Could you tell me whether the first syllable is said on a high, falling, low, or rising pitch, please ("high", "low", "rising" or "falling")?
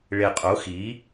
low